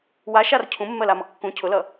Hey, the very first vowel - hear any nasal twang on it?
no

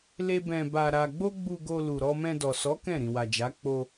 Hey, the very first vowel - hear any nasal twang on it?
no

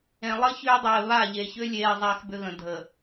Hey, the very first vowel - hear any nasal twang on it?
yes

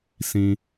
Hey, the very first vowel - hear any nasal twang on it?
yes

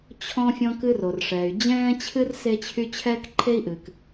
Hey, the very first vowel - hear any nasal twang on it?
yes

